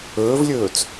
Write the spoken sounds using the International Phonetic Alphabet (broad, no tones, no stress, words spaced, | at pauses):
ɵːvlʲɵːt͡s